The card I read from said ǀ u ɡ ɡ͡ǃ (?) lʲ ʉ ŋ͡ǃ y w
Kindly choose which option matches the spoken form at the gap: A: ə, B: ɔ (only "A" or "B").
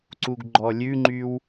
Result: B